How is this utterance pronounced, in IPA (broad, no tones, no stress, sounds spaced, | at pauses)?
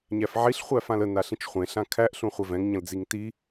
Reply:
ɲ æ f ʕ i ɬ χʷ æ f ã l ə n a ɬ ĩ t͡ʃ χʷ ẽ ɬ ã kʰ æ ʔ ɬ ũ χʷ ɛ v ɛ̃ ŋ ɲ ə̃ l d͡z i ŋ t i